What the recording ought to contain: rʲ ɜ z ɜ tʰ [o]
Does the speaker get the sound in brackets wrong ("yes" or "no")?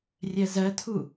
yes